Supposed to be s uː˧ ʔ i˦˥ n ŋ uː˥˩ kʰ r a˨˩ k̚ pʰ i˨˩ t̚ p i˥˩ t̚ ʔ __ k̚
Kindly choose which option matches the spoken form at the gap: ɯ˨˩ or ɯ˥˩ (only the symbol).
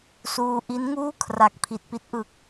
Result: ɯ˨˩